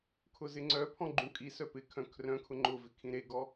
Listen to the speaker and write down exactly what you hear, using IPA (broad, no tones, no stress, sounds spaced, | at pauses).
kʰ ʊ z ɪ ŋ͡ǀ œ pʰ ɔ̃ ɡ͡ǃ ũ kʼ i s œ p ɪ kʰ œ̃ kʰ r œ̃ kʰ ʊ ŋ͡ǃ ʊ v ɪ kʰ ĩ ɾ e ɡ ɔ